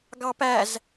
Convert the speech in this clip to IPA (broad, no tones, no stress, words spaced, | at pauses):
ɡɑpæz